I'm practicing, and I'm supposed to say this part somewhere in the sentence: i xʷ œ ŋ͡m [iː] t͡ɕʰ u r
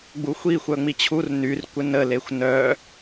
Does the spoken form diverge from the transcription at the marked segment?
yes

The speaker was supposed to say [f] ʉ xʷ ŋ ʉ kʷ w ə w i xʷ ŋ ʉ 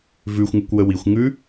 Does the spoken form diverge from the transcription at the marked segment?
yes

